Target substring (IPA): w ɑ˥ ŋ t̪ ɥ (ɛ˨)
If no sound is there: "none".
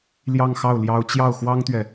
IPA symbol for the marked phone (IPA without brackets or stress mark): ɛ˨